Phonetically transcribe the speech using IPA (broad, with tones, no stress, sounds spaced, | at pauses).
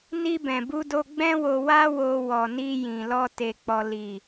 n i˧ b ɛ̃˨ b u˧ d o˧ ɡ͡b ɛ̃˦ w o˧ w a˦ w o˧ w ɔ˨ n i˧ j ĩ˨ l ɔ˧ t e˧ k͡p ɔ˧ l i˨